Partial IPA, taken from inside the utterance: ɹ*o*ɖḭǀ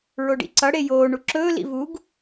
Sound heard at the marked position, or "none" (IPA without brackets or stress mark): o